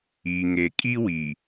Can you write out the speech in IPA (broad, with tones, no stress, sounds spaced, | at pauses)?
iː˨ ŋ e˨ kʼ i˦ w i˨